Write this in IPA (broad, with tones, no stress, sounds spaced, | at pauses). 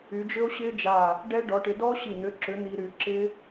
y˨˦ d͡ʒ ʏ˦˥ o̯ ɕ ɪ˦˥ d͡ʒ a˧˩ | ɖ ɛ˦˥ ɖ ɔ˨˦ ʈ ɪ˨˦ d ɔ˦˥ ɕ i˧˩ n̪ ʏ˨˦ ǁ ʏ˨˦ n̪ i˦˥ ɾ y˨˦ ǁ ɪ˦˥